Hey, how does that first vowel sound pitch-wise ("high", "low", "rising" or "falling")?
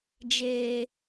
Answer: low